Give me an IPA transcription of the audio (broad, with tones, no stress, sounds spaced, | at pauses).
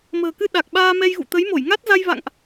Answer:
m ə̤ː˨˩ k ɨ˧ ɗ a˨˩ k̚ ɓ aː˧ m ɛ˧ j ɣ ṵ˧˨ t̪ ə˨˦ j m o˧˩ j ŋ a˦˥ t̚ z a˧ j v a̰˧˨ ŋ ʔ